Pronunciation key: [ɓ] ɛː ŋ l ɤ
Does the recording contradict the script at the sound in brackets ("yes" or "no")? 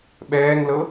no